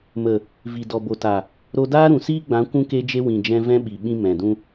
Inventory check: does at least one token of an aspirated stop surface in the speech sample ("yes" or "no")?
no